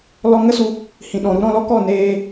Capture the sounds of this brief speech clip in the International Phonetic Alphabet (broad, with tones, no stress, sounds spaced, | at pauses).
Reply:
l ɔ˧ ŋ ə˦ s u˧ | h ĩ˨ ɗ ɔ̃˨ ɾ u˧ ɾ ɔ̃˧ l ɔ˦ k ɔ˦˨ n eː˧